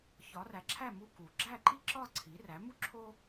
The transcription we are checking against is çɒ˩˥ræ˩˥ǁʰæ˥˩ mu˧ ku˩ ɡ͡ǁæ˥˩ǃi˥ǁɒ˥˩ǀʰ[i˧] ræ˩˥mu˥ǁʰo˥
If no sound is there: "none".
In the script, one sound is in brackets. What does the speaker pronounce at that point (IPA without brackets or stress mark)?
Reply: i˩˥